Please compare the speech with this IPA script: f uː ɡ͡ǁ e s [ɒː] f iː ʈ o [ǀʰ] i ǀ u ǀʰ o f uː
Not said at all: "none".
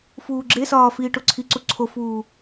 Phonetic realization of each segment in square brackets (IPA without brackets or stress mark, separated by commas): ɒː, ǀʰ